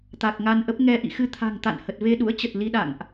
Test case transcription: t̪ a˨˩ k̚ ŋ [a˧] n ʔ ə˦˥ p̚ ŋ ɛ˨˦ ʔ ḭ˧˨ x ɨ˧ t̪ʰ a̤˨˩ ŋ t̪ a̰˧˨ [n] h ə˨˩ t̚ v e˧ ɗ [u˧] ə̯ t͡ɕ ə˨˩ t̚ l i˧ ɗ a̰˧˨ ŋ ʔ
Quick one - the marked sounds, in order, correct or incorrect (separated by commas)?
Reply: correct, correct, incorrect